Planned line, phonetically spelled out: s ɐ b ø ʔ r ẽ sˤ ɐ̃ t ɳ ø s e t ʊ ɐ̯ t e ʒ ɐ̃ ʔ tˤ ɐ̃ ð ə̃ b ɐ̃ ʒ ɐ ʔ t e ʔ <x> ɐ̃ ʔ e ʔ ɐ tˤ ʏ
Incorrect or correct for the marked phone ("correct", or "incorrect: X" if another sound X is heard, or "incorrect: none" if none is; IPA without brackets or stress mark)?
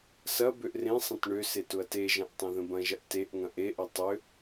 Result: incorrect: ŋ